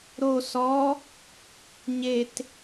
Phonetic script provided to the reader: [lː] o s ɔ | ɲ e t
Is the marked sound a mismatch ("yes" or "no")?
yes